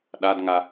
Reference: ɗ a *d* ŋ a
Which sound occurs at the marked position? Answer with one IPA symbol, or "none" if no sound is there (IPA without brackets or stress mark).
d